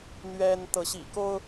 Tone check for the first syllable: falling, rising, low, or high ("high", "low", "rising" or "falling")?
high